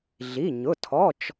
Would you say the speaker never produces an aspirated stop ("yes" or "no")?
no